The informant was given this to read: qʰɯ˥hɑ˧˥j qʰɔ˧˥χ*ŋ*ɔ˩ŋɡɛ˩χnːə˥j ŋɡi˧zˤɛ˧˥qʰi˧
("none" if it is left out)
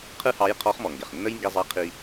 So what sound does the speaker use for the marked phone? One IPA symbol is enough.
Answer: m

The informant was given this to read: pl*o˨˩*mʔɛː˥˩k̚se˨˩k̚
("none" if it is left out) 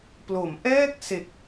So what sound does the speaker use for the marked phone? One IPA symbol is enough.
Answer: o˩˦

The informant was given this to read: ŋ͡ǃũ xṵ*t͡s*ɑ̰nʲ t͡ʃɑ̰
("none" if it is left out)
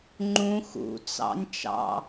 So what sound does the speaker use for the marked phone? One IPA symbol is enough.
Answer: t͡s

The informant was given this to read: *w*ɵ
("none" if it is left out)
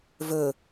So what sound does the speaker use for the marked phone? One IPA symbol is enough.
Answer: v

